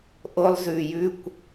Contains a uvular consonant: no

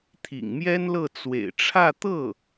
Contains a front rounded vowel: no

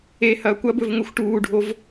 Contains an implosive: no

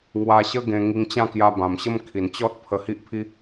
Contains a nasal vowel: yes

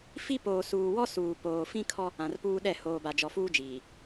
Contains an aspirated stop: yes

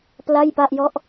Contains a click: no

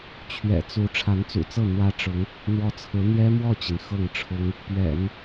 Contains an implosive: no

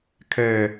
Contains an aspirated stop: yes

